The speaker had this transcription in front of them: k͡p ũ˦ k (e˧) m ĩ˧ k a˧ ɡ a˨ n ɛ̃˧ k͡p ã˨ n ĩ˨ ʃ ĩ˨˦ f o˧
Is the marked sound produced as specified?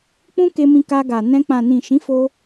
yes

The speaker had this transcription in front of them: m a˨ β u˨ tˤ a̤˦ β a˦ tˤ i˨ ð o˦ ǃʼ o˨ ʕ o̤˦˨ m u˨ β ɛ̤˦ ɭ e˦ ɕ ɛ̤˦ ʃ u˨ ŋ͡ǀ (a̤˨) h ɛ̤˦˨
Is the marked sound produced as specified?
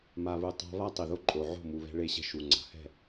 yes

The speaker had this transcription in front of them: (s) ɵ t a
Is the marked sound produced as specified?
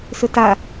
yes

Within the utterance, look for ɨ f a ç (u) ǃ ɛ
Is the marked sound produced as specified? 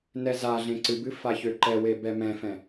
no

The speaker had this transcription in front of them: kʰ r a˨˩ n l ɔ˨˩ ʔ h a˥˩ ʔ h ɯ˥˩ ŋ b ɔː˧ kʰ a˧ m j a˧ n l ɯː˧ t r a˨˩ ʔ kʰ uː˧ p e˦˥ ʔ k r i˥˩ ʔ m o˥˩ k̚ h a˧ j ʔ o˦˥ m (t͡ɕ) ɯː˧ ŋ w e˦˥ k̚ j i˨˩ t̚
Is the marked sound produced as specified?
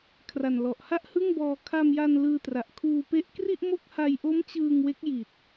yes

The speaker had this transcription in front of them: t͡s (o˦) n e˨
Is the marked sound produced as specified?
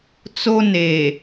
yes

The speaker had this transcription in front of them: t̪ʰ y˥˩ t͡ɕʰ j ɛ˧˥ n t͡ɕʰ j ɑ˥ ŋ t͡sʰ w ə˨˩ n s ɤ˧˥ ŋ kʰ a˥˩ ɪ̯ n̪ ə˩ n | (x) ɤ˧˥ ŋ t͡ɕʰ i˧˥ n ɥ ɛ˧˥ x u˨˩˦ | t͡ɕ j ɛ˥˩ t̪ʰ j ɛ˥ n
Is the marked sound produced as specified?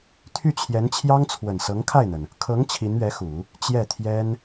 no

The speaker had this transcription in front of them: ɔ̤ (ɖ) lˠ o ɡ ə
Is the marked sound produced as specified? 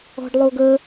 yes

